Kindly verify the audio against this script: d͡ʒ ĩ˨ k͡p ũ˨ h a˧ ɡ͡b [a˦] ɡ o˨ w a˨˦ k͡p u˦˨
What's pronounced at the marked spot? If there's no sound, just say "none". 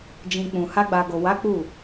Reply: a˨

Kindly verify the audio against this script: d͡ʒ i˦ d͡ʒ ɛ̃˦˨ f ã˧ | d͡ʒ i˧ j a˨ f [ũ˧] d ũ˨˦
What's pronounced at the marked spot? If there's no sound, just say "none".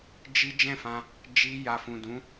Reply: ũ˨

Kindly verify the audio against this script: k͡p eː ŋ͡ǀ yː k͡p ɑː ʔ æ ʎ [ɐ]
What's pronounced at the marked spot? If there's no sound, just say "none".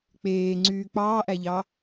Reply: ɑ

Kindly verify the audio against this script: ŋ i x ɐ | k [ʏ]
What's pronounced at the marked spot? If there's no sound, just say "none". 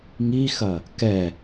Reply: ɛ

